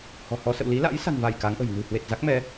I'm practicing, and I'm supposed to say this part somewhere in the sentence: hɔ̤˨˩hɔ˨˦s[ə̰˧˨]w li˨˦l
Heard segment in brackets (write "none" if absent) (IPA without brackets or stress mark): ə̰˧˨